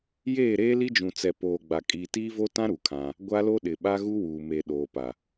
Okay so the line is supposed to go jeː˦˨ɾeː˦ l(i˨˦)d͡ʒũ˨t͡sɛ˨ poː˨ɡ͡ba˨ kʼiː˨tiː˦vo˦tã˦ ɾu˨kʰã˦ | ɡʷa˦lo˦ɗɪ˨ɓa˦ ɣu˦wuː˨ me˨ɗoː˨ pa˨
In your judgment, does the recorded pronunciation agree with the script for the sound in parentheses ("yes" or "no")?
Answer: no